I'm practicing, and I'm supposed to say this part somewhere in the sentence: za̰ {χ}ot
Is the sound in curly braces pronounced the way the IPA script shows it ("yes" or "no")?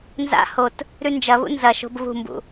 no